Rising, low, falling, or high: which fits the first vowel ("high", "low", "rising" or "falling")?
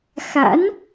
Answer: rising